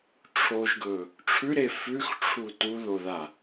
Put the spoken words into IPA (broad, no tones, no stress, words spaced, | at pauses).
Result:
ʈ͡ʂʰoʒɡɵ | ʈ͡ʂʰʉɾe fʉxʈ͡ʂʰu tuðoða